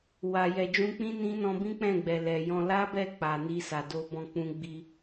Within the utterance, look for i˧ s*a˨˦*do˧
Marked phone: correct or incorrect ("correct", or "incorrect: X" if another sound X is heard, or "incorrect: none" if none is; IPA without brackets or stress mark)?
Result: incorrect: a˨